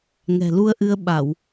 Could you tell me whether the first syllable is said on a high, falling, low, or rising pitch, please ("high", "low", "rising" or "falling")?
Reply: low